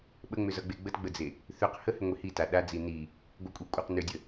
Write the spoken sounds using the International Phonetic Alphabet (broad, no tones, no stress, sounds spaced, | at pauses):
ɓ ə ŋ͡m ʏ z ʌ ɡ͡b e ɡ͡b ə t ɡ͡b ə d͡z e | θ ʏ q h ə h ʏ ŋʷ i h i t a ɗ a d͡z i n i | ɡʷ ə kʷʼ i kʷʼ ʌ q n ʏ dʲ ə